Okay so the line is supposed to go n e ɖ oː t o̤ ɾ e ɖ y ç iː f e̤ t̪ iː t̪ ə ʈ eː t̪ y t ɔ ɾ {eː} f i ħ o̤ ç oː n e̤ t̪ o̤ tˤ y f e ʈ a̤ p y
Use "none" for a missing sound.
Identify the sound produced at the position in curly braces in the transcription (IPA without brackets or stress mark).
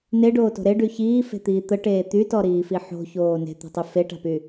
iː